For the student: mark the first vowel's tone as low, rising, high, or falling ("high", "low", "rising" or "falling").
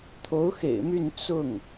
rising